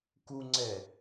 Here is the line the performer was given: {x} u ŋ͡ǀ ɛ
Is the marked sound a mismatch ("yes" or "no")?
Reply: yes